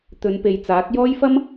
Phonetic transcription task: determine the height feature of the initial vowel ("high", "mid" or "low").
mid